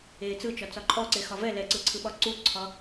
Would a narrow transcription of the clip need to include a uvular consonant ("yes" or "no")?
no